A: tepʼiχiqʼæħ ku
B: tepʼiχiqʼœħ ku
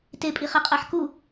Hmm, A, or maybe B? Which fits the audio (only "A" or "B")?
A